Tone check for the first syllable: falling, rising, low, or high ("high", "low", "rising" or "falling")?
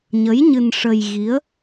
rising